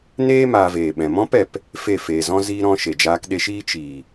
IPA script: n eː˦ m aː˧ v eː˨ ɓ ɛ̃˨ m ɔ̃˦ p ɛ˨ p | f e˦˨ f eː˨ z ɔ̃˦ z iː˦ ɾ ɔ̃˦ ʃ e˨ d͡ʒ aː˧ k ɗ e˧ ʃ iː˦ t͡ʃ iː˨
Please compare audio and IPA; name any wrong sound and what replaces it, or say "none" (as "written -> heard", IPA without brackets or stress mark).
none